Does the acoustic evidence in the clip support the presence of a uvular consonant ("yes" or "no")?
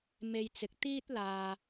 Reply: no